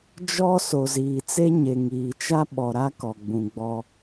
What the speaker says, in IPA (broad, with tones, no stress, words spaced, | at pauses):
d͡ʒɔ˦ so˨ziː˨t͡se˦ɲe˨ ŋiː˨t͡ʃa˦ɓɔ˨ɾa˦ kɔ˨ɡ͡bũ˨ ɡ͡bɔ˦